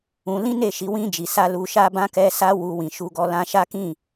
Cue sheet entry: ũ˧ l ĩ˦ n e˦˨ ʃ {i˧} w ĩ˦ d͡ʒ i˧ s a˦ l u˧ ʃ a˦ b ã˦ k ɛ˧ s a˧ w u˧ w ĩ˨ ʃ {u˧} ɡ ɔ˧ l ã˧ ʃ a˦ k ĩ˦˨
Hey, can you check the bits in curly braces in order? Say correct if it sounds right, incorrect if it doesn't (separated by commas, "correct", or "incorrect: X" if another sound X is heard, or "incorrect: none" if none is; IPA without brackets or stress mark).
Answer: correct, correct